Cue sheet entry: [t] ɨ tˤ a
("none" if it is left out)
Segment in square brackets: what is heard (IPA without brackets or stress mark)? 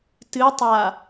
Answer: t